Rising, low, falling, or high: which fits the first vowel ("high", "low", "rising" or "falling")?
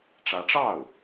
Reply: rising